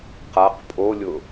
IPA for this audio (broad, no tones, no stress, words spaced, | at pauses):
qaq pʼolʲʊ